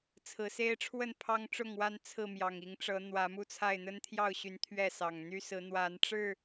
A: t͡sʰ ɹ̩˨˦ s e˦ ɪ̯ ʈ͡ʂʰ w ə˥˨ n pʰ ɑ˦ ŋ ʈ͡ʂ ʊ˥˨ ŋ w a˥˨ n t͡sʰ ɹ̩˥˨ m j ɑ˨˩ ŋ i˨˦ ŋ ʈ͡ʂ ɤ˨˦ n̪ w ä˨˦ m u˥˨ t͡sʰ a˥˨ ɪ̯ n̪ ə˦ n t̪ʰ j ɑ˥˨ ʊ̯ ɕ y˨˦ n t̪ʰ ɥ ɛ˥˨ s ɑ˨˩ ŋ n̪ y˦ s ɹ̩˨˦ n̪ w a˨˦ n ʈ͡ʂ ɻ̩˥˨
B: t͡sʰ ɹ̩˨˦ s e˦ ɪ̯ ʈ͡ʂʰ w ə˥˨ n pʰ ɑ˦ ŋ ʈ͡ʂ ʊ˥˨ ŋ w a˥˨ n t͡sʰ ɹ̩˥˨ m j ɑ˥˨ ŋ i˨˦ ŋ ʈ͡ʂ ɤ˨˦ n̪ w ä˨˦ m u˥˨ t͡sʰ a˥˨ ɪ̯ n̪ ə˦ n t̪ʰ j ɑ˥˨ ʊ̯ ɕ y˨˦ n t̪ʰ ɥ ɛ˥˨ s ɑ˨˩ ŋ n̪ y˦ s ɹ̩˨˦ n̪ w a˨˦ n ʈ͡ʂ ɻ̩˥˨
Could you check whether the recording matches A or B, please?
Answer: A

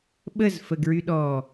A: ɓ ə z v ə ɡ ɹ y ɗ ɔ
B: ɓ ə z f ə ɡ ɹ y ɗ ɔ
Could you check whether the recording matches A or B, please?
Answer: B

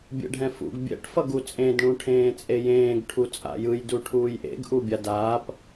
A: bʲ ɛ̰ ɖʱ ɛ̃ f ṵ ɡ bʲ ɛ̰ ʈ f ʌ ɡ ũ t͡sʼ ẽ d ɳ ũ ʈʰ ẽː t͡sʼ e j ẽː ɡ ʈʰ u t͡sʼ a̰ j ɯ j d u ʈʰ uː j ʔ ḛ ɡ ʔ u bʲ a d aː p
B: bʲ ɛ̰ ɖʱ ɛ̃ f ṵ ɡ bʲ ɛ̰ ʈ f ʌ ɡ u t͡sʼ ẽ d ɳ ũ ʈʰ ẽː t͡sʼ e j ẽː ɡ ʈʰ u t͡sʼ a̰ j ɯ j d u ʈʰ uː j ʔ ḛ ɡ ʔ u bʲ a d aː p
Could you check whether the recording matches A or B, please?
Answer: B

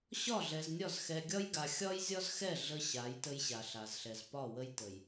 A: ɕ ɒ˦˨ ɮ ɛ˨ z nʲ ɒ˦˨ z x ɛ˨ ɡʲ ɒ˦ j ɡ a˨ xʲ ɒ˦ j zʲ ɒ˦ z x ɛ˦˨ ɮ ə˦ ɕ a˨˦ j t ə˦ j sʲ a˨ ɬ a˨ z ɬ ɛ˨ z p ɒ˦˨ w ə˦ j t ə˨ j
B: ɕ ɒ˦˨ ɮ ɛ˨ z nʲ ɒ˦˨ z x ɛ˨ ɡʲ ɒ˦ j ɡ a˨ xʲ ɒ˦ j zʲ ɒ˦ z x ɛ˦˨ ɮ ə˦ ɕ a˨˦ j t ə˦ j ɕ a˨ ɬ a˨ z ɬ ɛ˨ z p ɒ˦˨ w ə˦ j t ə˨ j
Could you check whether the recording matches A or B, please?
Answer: B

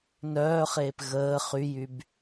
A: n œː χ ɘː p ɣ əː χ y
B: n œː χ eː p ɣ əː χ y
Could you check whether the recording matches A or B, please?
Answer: B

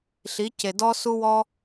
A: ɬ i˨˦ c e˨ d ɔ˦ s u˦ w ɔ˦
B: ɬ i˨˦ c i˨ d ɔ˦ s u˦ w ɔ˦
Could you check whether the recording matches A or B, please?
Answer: A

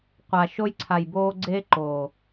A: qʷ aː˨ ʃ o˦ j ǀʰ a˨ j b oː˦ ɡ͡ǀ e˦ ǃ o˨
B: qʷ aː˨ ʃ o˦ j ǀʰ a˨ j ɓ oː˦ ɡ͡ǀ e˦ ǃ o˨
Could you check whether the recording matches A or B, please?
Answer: A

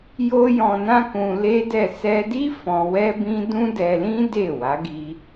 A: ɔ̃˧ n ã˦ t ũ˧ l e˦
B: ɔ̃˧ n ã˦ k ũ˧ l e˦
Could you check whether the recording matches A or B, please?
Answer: B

